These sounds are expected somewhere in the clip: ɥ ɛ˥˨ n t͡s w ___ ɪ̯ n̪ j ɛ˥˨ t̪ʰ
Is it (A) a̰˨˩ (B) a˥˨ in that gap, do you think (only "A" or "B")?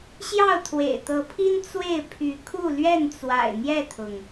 A